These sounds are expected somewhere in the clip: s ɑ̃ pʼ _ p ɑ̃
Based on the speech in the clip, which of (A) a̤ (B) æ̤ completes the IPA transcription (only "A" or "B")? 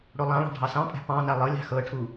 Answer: B